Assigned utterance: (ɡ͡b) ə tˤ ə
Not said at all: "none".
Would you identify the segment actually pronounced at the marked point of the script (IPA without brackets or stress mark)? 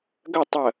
ɡ